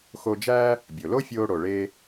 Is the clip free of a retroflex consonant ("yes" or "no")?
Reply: no